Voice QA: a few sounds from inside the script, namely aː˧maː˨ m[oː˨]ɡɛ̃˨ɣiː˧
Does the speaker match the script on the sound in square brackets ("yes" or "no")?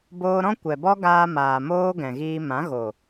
no